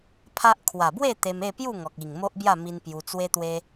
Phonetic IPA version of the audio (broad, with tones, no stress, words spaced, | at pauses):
pʰa˦ʔ kʰwa˨˩bwe˥˧ t̪e˧me˥˧pju˥˧ ŋɔ˨k̚i˨˩ŋ mo˦ʔbja˥˧mi˧n pju˧t͡swe˦t̪we˦